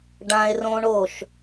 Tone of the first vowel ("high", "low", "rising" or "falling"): high